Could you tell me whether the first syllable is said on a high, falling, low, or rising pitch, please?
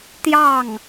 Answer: falling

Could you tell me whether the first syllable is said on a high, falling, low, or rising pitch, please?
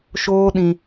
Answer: high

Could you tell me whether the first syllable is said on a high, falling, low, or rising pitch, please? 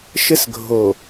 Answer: high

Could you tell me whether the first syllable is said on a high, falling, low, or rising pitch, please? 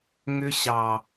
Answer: high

